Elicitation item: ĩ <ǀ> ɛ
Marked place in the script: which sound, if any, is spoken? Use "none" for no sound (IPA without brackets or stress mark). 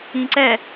ǀ